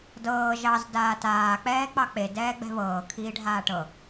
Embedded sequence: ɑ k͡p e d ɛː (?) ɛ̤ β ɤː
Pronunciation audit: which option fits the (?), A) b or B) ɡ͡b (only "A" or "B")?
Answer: B